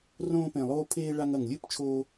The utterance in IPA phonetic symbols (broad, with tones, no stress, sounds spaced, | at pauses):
r õː˧ p ẽ˨˩ lˠ oː˧ pʰ eː˧ ɭ a˧ ŋ ɐ˨˩ ŋ lʲ ɨ˦˥ p t͡ʃʰ oː˧